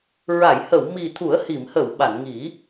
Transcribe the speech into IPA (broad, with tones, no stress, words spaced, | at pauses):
ɹa˨˩˨jhə˨˩˨w mi˨˩t̪ʰu˨˩˦ə̯hi˨˩˨m hə˨˩˨w ɓa˨˩˨nŋi˨˩˦